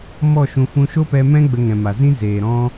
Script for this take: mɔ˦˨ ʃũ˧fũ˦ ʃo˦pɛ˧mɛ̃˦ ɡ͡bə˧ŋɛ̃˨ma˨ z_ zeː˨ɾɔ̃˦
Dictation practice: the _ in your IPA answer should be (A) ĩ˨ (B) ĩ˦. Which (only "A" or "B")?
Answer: B